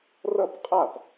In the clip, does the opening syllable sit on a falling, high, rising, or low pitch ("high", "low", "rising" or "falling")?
falling